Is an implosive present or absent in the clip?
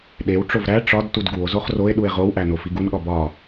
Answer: present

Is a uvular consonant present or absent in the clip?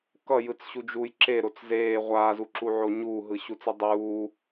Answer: present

